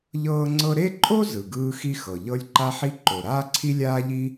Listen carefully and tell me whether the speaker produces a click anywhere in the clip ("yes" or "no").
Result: yes